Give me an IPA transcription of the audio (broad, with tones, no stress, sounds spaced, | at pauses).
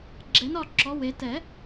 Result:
ɡ͡ǁ ɛ˩˥ n ɒ˩˧˩ ǁ ɔ˩˧˩ w e˨˩˦ t ɛ˨˩˦